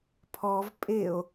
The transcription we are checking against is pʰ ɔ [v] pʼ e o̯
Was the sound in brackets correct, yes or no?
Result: yes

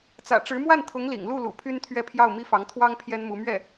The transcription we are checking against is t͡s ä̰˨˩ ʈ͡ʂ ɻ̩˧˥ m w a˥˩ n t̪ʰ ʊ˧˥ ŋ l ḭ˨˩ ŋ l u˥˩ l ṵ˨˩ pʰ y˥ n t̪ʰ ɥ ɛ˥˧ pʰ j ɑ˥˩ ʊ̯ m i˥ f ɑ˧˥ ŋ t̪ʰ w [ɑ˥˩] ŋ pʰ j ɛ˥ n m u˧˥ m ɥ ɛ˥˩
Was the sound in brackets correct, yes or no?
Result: no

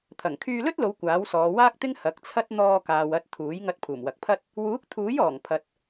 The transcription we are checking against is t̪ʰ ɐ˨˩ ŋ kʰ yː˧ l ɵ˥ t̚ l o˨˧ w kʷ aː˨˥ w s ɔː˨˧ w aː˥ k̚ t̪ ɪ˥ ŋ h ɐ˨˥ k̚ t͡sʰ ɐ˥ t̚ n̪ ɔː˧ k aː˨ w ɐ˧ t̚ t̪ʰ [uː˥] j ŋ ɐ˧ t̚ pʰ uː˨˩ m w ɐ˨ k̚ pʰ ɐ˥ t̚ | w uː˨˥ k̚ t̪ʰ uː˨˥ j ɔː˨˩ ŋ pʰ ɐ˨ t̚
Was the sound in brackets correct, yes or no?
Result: no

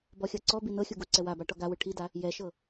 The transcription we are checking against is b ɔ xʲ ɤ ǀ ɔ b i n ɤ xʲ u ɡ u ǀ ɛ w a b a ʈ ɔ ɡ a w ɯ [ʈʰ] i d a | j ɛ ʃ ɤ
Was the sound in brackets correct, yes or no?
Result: yes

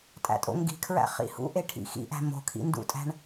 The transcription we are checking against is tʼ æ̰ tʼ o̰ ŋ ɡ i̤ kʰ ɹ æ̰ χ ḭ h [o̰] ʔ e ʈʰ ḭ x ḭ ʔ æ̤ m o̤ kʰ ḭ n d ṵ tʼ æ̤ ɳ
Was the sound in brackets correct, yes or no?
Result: no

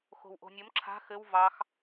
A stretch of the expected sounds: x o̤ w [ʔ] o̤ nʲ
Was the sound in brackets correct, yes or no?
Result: yes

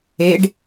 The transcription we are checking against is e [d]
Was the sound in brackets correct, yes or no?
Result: no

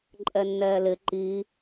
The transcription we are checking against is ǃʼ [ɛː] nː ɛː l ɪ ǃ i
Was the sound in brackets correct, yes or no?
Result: no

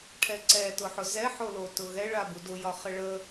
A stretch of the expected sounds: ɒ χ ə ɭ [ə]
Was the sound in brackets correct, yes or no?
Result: yes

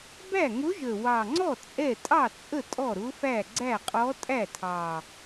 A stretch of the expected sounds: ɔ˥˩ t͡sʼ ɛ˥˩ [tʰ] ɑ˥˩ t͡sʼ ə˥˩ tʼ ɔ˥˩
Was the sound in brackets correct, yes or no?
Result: no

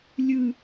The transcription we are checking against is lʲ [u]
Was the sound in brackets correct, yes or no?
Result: no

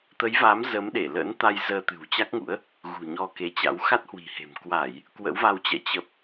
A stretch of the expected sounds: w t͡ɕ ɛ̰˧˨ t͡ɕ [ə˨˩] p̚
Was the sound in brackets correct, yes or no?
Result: yes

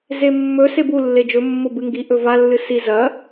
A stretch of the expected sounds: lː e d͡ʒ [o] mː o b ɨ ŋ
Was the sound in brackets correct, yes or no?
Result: no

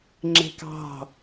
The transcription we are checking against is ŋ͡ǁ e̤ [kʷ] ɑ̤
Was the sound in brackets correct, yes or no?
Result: no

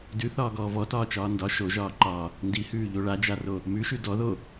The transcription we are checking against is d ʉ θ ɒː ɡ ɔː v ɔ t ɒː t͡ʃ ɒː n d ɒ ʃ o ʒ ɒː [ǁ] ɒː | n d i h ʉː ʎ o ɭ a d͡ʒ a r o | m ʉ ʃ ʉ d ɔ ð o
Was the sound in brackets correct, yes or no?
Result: no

